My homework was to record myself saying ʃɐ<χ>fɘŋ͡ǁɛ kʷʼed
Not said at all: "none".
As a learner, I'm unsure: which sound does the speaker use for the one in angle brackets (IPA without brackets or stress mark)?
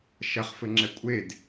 χ